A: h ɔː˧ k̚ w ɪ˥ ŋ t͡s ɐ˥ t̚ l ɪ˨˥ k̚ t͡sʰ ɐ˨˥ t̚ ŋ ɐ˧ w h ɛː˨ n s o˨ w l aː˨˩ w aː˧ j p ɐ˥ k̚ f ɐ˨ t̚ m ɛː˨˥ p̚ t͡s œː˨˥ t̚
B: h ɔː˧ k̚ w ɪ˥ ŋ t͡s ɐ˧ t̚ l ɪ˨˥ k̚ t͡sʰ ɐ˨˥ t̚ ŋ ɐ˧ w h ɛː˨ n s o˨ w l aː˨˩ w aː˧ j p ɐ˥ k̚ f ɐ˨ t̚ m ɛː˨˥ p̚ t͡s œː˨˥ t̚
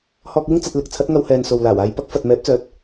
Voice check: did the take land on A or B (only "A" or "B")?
B